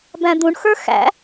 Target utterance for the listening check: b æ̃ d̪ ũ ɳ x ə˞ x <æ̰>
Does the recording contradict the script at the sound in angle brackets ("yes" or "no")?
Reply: no